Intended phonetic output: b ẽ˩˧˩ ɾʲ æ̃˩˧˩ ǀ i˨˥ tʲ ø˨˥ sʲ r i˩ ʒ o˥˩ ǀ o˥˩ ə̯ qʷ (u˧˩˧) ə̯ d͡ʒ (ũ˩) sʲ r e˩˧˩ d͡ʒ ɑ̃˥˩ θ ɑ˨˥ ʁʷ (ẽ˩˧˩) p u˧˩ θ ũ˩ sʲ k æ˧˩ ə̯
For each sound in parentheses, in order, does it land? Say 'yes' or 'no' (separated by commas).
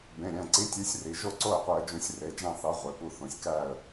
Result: no, no, no